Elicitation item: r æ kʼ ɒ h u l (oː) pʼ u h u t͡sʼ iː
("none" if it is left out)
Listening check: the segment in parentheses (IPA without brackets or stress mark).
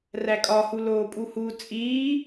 oː